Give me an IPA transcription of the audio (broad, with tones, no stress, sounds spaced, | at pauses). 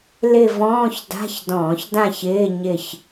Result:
l ɪ˦˨ v ɔ̃ː˧˥˧ ç d a̤˧˥˧ ç d ɔ̃ː˧˩˧ ç d ã˦˨ ç ɪː˧˥˧ ɲ ɪ˦˨ ç